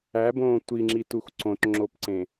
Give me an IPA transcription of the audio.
æbõː tʷiŋ͡ǁitux ǀõtŋ͡ǁopǀẽ

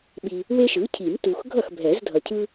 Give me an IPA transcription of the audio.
ɓi˨ | we˦ʃɯ˩˥cʰi˨˩˦m tu˨x ɡʱʌ˥˩x bʱɛ˨˩˦zdʱʌ˨cʰɯ˦

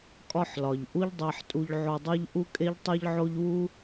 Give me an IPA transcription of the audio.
kʼɒ˧ħlɒ˩ʎ ʔu˥ʎdˤæ˧ħtʼu˧ʎ ʕo˧dˤæ˥ʎ ʔu˥kʼe˥ʎ tˤe˥ʎʕo˥ʎ wu˥

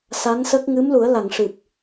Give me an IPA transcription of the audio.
sa˧˥nsə˦˥k̚ ŋɨ˧˥mlu˨˩˦ə̯la˨˩˨ŋ ʂɨ˨˩p̚

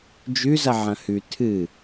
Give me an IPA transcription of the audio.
d͡ʒʉzɐ ʕɐ̃hʉ tʰɨ

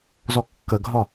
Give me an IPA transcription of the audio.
zɔkːəɡʱɒ

